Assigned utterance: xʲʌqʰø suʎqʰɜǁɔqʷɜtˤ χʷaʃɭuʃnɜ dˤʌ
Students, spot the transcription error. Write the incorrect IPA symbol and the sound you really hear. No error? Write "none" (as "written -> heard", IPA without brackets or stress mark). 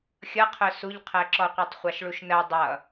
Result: ø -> œ